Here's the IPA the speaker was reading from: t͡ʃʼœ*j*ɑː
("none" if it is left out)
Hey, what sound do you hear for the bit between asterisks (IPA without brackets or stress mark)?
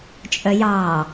j